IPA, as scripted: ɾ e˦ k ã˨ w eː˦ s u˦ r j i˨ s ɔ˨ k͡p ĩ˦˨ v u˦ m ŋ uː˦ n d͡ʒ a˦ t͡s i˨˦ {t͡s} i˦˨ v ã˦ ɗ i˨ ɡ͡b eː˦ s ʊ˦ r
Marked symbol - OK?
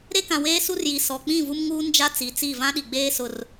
yes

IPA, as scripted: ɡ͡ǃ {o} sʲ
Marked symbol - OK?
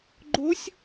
yes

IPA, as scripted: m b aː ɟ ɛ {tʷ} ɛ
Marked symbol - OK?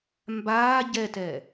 no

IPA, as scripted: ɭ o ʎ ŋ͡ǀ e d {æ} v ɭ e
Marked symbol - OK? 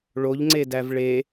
yes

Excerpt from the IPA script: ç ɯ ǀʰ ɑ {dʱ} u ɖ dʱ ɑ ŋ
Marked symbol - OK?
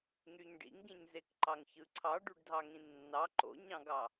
no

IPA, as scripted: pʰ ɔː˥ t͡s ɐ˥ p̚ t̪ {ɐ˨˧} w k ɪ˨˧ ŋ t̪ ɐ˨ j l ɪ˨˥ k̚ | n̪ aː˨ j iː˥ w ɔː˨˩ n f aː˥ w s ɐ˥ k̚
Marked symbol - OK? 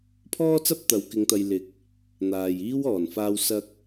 yes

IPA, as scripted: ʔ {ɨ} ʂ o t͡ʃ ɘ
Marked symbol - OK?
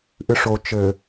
yes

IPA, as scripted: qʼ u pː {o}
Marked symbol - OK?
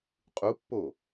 yes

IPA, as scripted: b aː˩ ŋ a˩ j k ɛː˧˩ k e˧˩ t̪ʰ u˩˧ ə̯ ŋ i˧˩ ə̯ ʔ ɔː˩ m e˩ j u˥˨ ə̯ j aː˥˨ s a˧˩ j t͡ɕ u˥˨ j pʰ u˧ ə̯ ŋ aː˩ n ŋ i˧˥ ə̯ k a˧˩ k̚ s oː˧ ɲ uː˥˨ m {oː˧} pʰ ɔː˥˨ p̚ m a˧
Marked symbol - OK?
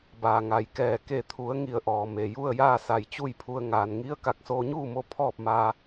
no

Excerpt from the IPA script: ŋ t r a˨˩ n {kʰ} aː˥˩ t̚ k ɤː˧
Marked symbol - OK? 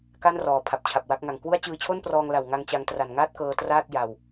no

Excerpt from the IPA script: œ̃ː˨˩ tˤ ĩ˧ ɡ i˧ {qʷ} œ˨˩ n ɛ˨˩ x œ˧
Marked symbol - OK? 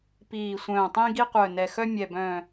yes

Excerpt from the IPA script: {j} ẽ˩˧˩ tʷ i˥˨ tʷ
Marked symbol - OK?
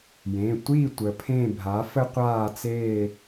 yes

